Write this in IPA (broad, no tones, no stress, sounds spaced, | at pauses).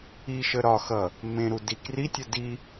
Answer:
i ʃ ə ɾ ɒ x ʌ | m ẽ ɾ u d i k r i tʲ ə d i